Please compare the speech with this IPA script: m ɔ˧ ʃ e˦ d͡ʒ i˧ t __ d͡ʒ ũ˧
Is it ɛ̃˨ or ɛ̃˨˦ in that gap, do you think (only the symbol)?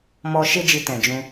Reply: ɛ̃˨